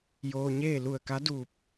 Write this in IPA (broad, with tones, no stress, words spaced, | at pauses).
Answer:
joː˧ɲeː˥˨ lu˧˩ə̯ka˧˥ duː˧˩p̚